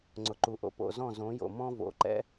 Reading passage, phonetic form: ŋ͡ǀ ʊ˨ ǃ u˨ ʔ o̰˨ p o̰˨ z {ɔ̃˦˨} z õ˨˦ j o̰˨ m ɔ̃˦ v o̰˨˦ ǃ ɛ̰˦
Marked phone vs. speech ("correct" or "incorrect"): correct